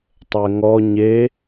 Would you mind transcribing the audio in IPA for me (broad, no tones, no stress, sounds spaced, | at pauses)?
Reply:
tˤ ɛ ŋ ɔ ɲ e